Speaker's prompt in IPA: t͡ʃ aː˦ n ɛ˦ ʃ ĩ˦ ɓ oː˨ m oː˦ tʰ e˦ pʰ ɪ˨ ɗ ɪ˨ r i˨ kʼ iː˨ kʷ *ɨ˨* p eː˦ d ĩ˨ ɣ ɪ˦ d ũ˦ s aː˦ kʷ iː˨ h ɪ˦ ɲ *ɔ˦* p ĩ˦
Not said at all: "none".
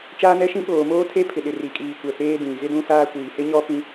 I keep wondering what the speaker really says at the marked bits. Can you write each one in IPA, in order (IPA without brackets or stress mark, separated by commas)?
ɛ˨, ɔ˦